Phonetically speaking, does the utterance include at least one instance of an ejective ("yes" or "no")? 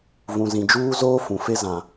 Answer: no